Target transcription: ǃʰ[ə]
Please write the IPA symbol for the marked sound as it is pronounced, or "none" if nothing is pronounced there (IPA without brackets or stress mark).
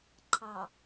ɑ